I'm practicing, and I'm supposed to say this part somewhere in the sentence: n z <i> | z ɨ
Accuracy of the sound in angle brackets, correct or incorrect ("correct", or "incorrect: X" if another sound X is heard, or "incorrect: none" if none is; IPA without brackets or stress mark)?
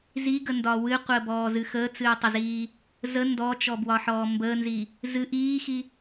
correct